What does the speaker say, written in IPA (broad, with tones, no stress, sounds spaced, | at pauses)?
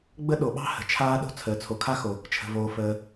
ɡ͡b ə˥ ɗ o˩ ɓ ɑ̤˥ h ə̤˩ t͡ʃʰ aː˥ ɗ o̤˥ t͡sʰ əː˩ t͡sʰ o˩ kʰ a˥ x o˩ | t͡ʃʰ ə̤˩ v oː˩ f əː˩